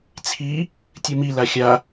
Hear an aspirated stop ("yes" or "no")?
yes